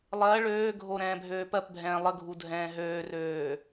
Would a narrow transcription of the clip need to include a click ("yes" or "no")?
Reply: no